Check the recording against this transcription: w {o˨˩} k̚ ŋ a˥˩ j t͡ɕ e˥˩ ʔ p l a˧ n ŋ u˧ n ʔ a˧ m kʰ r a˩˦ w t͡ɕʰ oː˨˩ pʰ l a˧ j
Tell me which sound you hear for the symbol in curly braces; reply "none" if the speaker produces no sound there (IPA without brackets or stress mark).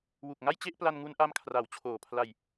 u˨˩